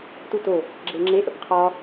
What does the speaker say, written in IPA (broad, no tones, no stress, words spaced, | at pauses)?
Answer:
tuto | ɡ͡ǁeŋ͡ǁe ʔə̰pqʰɒ